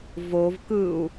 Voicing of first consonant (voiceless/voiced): voiced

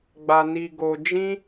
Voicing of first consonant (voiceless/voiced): voiced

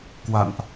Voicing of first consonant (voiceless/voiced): voiceless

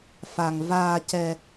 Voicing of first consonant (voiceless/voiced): voiceless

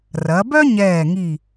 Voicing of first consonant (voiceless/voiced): voiced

